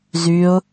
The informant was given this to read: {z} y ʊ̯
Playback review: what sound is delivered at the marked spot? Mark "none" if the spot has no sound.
z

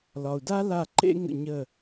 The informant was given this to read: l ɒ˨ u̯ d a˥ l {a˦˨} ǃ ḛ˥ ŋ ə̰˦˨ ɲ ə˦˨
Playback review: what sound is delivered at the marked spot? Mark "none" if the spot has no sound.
a˦˨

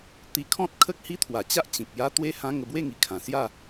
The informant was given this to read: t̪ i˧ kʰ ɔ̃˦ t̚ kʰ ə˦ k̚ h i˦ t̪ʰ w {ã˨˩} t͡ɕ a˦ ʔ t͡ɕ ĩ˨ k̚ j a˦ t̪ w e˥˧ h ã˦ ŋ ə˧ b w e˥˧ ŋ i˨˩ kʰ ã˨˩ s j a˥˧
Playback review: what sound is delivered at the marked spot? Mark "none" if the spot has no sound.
a˨˩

